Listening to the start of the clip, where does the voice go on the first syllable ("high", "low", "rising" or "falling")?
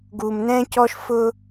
low